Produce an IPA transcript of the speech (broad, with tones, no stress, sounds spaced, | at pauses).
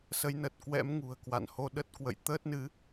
s ə˨˦ j n ə˨˩ t̚ k w ɛ̰˧˥ m ŋ ṳ˨˩ ə̯ k w a̰˧˨ n h o˧ ɗ ə˦˥ t̚ k w ə̰˧˨ j t̪ əː˦˥ t̚ n ɨ˨˦